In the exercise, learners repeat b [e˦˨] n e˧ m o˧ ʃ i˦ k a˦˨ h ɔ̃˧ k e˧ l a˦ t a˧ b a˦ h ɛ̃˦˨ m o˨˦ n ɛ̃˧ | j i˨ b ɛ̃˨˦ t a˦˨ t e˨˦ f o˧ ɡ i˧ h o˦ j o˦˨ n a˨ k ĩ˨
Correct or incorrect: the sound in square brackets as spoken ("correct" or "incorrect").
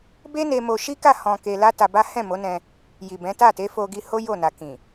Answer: incorrect